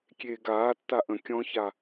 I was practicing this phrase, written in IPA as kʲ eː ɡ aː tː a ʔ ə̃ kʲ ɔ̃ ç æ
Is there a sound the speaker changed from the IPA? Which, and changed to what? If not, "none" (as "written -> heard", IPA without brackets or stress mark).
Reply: æ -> a